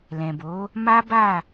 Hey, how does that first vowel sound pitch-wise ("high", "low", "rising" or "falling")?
low